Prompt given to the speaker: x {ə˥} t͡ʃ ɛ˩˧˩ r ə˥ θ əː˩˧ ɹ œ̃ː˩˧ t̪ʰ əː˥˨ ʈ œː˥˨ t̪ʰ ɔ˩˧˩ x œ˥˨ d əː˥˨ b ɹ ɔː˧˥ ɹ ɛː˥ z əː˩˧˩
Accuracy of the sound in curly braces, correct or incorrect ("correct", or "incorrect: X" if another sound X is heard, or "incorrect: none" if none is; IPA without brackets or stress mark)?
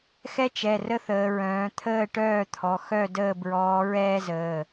incorrect: ɛ˥